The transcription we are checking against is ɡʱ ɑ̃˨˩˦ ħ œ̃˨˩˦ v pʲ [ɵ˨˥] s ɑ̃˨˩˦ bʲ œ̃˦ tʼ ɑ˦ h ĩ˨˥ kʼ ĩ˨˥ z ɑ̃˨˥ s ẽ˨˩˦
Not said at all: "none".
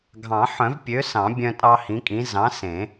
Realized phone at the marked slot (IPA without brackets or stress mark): ø˨˥